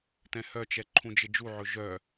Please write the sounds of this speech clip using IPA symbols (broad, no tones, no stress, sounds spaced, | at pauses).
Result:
t ɛ̃ h œ t͡ʃ ɛ ǃʰ ũ d͡ʒ ɪ d͡ʒ u ʕ ɵ ʒ œ